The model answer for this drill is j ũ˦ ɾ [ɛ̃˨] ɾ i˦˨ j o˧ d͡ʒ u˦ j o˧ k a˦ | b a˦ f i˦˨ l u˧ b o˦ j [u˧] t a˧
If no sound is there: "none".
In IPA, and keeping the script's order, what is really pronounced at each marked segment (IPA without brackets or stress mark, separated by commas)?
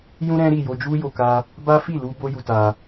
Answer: ɛ̃˦, u˧